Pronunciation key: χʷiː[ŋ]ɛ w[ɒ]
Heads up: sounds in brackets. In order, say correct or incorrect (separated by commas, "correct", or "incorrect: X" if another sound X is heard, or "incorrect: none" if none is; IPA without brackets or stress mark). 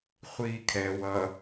incorrect: kʰ, incorrect: ʌ